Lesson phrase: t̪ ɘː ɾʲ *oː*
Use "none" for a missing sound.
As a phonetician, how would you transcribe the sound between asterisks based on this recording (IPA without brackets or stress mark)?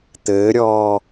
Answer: ɔː